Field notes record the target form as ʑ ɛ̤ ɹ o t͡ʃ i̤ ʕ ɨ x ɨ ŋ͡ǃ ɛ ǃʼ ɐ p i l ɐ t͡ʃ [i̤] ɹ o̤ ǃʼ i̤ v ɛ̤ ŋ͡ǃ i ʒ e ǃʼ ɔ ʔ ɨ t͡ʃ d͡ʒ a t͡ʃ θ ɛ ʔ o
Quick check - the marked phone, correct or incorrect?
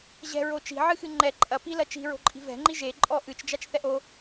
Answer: correct